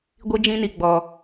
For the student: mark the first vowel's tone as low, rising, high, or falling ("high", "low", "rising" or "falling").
high